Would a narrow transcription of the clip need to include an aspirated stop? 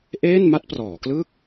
no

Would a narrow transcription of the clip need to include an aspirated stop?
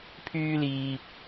yes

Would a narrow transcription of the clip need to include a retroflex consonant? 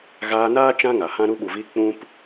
no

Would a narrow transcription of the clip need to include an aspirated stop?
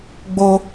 no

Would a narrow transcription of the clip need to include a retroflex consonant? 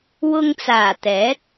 no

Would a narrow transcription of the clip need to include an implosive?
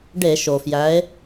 no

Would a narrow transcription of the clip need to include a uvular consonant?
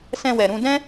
no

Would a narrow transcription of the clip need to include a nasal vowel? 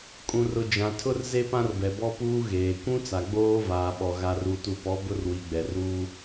yes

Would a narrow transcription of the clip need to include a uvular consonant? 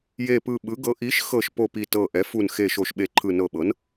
no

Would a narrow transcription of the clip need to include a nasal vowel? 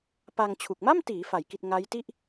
no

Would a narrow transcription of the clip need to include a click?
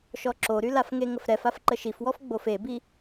yes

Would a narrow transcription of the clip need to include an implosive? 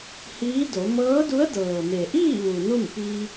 no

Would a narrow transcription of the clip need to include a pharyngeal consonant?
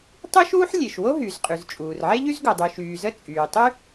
yes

